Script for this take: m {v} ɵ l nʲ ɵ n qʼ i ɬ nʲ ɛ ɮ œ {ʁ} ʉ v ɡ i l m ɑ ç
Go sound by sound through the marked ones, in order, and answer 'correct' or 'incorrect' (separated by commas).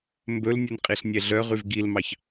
incorrect, correct